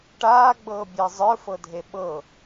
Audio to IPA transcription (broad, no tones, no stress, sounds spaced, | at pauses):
ʈ aː ɡ͡b ɤː bʲ əː zˤ ə˞ f ɤ dʱ e ɓ ɤ